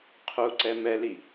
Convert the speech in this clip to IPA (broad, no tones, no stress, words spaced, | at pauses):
qʰuǀɛ mɛli